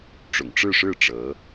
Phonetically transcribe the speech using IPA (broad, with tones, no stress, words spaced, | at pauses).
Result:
ʈ͡ʂʊ̰˨˩ŋʈ͡ʂɻ̩˥˧ʂɻ̩˥˩ ʈ͡ʂɤ˧˥